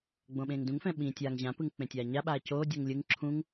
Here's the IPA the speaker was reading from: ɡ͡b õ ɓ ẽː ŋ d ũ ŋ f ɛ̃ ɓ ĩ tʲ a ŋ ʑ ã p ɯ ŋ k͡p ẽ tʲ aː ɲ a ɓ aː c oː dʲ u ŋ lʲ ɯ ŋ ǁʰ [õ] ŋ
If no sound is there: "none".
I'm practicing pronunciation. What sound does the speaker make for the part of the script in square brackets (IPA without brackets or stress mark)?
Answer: ũ